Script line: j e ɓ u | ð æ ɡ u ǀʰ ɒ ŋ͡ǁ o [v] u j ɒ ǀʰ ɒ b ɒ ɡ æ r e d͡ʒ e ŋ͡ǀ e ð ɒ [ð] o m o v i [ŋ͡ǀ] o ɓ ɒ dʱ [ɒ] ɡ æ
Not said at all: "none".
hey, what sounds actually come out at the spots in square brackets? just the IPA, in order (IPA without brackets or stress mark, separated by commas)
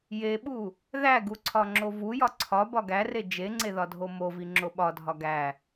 v, dʱ, ŋ͡ǁ, ɒ